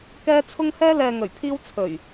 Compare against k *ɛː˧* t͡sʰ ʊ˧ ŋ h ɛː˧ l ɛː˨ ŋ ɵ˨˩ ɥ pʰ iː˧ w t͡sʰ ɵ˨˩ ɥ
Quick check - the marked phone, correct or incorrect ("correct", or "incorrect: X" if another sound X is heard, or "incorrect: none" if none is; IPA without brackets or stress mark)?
correct